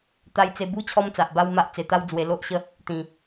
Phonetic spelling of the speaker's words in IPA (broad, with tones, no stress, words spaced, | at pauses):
t̪a˧jt͡se˧bu˦ t͡ɕʰɔ˧mt͡sa˨ʔba˧w ma˦ʔ t͡se˧t̪a˦wd͡zwe˧ lo˦ʔɕə˦ | t̪ĩ˧